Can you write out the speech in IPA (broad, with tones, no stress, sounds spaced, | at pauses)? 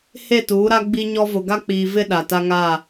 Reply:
h e˦˨ t uː˨˦ ɾ a˦ ɡ͡b i˦ ɲ ɔ˦ v ʊ˨ ɡ a˦ k͡p iː˨ v ɪ˦ ɗ a˨ t a˦ ŋ a˦˨